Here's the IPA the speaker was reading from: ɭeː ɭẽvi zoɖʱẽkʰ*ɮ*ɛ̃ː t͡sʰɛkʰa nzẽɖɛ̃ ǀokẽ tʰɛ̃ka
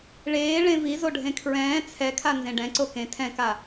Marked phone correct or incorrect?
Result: incorrect